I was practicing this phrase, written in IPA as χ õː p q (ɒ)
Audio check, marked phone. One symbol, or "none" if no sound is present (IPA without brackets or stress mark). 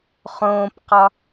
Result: ɒ